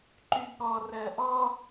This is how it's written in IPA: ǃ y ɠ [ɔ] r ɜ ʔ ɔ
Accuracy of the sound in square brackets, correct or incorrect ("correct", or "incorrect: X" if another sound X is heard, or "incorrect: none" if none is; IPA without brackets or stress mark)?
correct